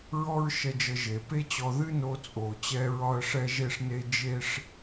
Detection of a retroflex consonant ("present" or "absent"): present